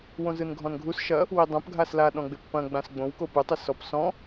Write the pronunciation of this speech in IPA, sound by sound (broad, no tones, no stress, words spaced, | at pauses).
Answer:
wõzɯnɡʱɔ̃nɡʱus ʃɐ | widˤõp ɡʱasla ɗɔ̃ɡ͡bɪpːɐ̃ ɡ͡bãsɡ͡bõw kopɯ tˤɪsɔp sɔ̃